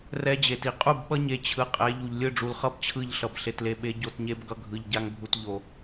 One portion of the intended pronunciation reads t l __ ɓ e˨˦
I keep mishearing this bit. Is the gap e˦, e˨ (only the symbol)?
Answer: e˨